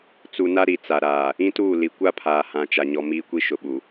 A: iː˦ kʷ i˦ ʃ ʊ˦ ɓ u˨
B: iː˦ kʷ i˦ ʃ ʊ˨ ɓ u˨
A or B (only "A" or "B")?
B